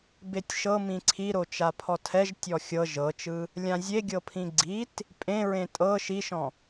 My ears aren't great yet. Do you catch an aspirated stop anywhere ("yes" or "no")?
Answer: yes